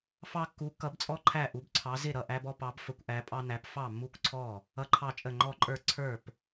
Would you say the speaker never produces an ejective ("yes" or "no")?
no